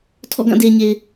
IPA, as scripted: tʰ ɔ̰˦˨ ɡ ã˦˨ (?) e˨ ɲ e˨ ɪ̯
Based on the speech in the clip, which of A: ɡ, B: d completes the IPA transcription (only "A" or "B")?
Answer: B